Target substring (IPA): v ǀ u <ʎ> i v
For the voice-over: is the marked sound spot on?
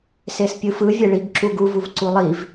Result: no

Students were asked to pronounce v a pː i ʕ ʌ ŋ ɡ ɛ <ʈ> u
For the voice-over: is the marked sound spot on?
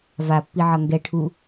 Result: no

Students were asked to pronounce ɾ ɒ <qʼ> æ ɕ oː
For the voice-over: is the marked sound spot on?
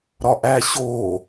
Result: no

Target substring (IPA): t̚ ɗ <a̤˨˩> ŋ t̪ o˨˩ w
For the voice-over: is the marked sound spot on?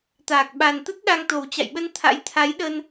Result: no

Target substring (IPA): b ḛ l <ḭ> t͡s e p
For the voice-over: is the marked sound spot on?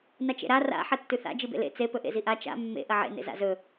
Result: no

